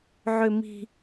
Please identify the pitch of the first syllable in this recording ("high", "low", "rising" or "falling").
low